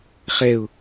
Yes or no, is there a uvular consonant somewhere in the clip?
yes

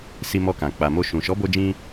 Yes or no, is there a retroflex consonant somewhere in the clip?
no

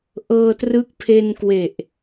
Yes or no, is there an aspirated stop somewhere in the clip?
yes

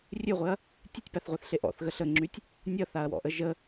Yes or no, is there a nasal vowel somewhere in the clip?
no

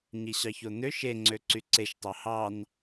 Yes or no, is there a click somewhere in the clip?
yes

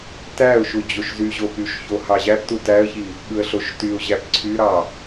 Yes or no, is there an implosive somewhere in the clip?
yes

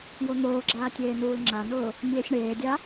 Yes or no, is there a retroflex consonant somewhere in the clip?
yes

